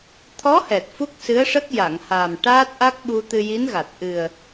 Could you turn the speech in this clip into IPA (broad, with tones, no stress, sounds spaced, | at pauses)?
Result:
t̪ʰ ɔ˧˥ h ɛ˨˩ t̚ f u˦˥ k̚ s ɨ˧˥ ə̯ ʂ ə˦˥ k̚ j a˨˩˨ ŋ h aː˨˩ m ʈ aː˦˥ t̚ ʔ a˦˥ k̚ ɓ u˧ t̪ ɨ˧ j i˧˥ n ɣ a˨˩ t̚ ʔ ɨ˨˩ ə̯